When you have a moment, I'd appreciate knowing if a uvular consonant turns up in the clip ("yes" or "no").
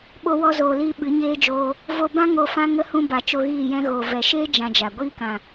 no